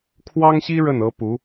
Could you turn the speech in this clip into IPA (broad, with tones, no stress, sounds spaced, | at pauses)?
kʰ w ɑ˥ ŋ ɕ i˥ ɻ ə˥˩ n ɤ˥ p u˧˥